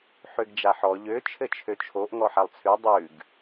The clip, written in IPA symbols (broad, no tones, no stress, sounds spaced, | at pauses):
ħ ø ɡ d͡ʒ a ħ ɔ ʎ ø t͡ʃʰ ɘ t͡ʃʰ ø t͡ʃʰ o ʔ ŋ ɔ ħ a lˠ t͡sʰ ʉ dˤ ʉ ɡ